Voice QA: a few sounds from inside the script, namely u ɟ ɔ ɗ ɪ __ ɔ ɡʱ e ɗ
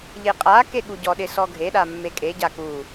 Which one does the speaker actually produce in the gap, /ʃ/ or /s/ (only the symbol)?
s